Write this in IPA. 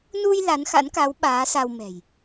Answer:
nu˧j la˨˦nxa̰˧˥nka˨˦w ɓaː˨˦sa˧w mɛ̤˨˩j

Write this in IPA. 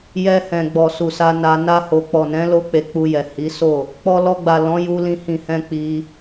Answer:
jɛ˧hɛ̃˨ɡ͡bɔ˨ su˨sa˧na˧ na˧ho˨k͡pɔ˨nɛ̃˨˦ lo˦k͡pe˧k͡pu˧jɛ˨ hi˨˦so˦˨ | k͡pɔ˧lɔ˧ɡ͡ba˨ lɔ̃˨˦ ju˧lĩ˧ hĩ˨hɛ̃˧ k͡pi˦

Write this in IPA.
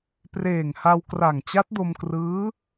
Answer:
preː˨˩ŋha˧wkra˨˩ŋ t͡ɕa˦˥t̚do˧mkrɯː˦˥

